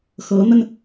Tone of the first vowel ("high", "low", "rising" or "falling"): rising